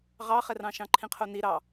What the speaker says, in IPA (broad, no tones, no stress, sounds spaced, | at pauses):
ʁ ɑ χ ɛ r ɑ̃ ʃ ɑ̃ ǃʰ ĩ qʰ o n i ɾ ɑ